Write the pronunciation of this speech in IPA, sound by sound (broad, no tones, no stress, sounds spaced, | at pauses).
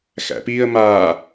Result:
x æ̰ p iː ə̯ m aː